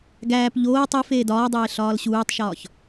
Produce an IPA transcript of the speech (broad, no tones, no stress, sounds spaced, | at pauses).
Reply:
ɡ æː p ʎ oː tˤ i f eː d ɒː dˤ eː ɬ ɒː l ɕ uː tˤ ʃ ɒː ç